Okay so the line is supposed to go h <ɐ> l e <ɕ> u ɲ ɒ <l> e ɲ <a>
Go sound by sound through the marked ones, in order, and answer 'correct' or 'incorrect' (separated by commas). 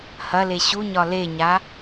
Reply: correct, correct, correct, correct